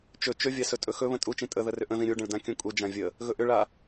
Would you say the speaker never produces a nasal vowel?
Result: no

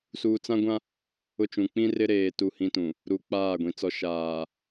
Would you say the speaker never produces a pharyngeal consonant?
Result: yes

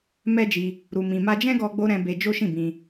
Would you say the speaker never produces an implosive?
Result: yes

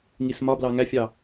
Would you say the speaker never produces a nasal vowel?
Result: yes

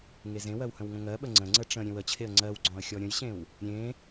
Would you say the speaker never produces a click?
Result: no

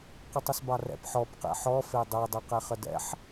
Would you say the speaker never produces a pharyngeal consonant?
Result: no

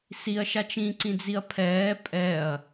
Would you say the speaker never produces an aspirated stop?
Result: no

